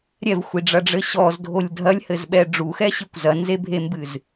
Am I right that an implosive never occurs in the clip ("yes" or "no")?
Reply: no